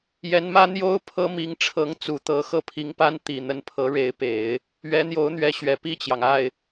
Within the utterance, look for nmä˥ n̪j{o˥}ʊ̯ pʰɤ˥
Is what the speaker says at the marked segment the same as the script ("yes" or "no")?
yes